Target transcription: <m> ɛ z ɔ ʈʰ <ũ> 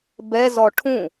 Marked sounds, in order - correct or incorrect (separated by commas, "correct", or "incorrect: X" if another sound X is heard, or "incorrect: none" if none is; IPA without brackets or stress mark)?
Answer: incorrect: b, correct